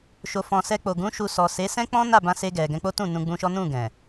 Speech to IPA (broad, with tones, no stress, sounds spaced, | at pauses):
ʃ o˨ f ɔ̃˨ s ɛ˧ k͡p o˨ ɡ ũ˨˦ ʃ u˧ s ɔ˨ s e˨˦ s ɛ̃˦ k͡p ɔ̃˦ n a˦˨ b ã˧ s e˧ ɡ ɛ˨ ɡ ɛ̃˧ k͡p o˦ t ũ˦˨ n ũ˧ ɡ͡b ũ˧ ʃ ɔ˦ n ũ˦˨ ɡ ɛ̃˨